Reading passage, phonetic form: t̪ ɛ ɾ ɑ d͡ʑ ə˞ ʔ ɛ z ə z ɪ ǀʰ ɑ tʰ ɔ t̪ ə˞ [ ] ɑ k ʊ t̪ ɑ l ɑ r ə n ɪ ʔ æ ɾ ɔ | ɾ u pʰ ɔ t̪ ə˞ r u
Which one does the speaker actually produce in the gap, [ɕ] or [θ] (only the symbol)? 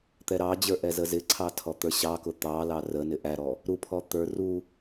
ɕ